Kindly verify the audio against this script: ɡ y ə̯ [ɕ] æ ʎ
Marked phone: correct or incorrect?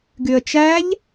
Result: incorrect